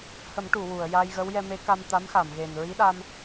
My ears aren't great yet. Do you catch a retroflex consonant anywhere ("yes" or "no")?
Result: yes